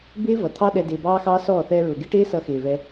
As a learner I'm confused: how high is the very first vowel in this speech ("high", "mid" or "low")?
high